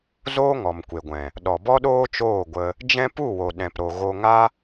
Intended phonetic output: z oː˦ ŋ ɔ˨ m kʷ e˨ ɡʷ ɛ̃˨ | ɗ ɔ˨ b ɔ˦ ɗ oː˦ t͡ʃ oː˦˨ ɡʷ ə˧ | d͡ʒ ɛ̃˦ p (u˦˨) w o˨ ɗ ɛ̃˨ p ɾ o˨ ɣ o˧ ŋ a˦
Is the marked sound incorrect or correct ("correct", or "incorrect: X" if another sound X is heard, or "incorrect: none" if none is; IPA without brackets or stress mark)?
correct